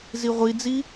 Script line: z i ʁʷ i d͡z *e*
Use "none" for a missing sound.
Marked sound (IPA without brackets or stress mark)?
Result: i